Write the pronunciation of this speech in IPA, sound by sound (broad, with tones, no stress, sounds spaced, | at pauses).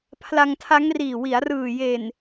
pʰ l a˧ ŋ tʰ a˦˥ ŋ r iː˨˩ w i˩˦ a̯ r ɯː˨˩ j e˨˩ n